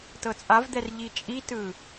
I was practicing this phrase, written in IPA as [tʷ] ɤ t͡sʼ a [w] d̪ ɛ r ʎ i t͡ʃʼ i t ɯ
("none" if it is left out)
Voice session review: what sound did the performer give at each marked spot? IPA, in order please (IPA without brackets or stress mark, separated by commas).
t, v